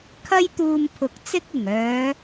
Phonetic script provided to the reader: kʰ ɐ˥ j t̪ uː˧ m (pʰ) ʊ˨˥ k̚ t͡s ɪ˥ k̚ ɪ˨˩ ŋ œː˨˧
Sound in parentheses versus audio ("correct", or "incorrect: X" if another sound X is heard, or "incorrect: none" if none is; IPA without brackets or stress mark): correct